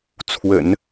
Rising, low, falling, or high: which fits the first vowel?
low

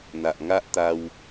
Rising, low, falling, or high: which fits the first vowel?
low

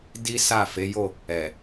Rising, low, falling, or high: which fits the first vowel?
high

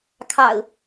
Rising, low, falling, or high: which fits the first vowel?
low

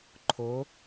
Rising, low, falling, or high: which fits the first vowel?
rising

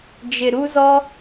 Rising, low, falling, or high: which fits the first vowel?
low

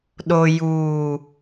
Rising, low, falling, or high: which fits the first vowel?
low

